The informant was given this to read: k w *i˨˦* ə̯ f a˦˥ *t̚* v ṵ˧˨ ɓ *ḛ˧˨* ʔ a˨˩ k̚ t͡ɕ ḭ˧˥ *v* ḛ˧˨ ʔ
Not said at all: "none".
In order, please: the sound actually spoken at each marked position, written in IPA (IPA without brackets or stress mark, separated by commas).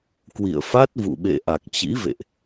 ḭ˧˨, t̚, ḛ˧˨, v